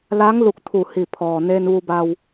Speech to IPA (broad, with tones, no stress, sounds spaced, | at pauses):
l a˧˥ ŋ l u˧ k̚ t̪ʰ u˧˩ h i˧˩ pʰ ɔː˩ n eː˧ n ʋ u˧ b a˧ w